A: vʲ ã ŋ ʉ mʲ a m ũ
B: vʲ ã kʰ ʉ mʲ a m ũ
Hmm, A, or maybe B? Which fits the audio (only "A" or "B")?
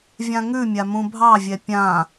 A